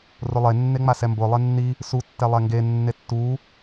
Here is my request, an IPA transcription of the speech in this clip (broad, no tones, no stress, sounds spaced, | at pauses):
r ʊ lˠ e nː e ŋ͡m a s ɛ m b ʊ lˠ e nː i | s u tː ɛ lˠ ɛ ŋ ɡ e nː e tː u